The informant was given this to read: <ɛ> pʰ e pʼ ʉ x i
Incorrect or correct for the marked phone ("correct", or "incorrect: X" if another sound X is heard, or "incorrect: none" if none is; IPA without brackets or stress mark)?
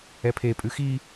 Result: correct